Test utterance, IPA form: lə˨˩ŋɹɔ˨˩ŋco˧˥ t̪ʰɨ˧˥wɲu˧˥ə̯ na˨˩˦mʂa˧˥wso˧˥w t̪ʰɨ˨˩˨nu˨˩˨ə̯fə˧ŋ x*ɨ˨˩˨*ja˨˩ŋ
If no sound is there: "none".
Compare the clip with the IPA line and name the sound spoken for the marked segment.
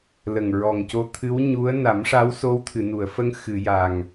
ɨ˨˩˨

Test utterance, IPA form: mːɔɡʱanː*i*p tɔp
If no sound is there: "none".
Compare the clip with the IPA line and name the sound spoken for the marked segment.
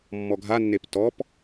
e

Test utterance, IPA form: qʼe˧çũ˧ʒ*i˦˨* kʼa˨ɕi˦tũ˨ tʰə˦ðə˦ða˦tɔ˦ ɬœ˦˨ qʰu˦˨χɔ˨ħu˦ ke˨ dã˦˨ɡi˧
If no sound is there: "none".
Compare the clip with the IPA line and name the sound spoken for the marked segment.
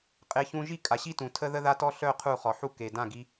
i˦˨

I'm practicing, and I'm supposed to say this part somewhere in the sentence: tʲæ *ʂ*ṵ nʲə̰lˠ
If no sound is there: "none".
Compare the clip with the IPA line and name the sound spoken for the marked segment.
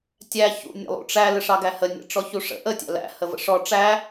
ç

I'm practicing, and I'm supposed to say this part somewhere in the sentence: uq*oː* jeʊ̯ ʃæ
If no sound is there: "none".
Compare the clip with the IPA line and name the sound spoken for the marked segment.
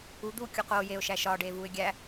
oː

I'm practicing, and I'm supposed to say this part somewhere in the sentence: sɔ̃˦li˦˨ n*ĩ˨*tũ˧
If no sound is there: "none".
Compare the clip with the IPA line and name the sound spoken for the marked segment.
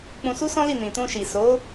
ĩ˨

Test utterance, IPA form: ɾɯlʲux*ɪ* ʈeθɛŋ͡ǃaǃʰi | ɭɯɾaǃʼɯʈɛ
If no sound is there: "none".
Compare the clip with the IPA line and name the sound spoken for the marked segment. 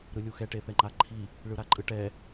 ɛ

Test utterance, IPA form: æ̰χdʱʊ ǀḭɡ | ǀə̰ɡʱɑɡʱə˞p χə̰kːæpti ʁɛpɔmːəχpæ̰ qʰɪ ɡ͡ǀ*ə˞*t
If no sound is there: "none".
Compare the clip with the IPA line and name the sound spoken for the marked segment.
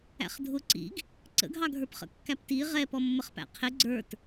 ə˞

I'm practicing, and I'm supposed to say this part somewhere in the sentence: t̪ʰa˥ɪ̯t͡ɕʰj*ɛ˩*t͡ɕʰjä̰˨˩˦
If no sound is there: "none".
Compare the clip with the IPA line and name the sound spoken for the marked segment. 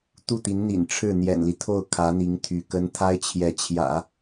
ɛ˧˥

